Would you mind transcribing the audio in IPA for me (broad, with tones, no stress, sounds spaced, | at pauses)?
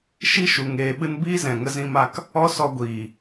ʃ i˦ ʃ u˨ ŋ eː˧ ɓ ɨ˦ n b iː˦ z ɛ̃˨ ŋ ə˧ z ĩ˧ m a˧ k | ɔ˦ s ɔ˧ ɡʷ iː˨